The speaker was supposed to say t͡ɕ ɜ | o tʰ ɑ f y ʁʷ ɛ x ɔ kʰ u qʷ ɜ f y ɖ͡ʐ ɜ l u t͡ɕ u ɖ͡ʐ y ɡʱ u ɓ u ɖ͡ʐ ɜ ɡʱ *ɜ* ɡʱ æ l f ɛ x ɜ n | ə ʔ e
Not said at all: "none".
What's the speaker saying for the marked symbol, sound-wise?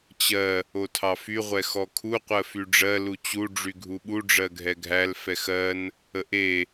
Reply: ɛ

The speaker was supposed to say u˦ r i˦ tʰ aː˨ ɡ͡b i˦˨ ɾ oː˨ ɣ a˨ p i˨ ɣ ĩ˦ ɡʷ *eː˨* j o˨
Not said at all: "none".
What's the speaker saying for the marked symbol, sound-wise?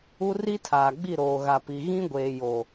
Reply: eː˨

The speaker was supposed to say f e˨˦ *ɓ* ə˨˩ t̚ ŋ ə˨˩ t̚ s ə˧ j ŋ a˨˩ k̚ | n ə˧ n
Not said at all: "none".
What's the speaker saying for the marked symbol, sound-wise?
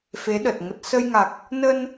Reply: ɗ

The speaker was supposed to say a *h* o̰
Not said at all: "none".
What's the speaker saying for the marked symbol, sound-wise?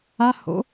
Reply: h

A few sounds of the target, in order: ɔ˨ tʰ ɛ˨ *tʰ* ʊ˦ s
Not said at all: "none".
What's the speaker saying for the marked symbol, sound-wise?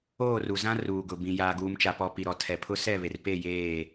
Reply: pʰ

